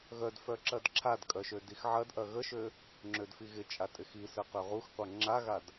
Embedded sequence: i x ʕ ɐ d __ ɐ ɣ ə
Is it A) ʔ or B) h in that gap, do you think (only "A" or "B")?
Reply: A